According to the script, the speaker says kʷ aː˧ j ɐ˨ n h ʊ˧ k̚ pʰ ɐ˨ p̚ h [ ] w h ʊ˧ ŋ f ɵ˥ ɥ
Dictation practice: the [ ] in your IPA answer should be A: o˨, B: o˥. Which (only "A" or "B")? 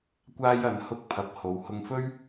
A